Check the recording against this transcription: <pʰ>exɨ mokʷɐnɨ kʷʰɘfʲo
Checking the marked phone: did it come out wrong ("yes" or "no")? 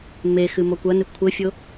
yes